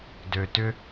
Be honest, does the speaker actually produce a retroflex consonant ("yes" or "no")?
no